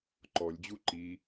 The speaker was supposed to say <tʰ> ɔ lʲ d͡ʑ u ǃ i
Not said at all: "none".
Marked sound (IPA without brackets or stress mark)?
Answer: ǃ